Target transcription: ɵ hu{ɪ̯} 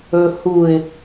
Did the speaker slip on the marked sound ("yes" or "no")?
no